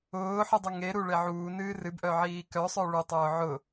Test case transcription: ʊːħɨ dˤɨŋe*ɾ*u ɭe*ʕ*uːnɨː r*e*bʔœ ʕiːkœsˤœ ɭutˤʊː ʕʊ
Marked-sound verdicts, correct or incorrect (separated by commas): correct, correct, incorrect